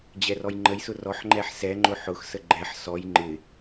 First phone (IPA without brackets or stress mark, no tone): d͡ʑ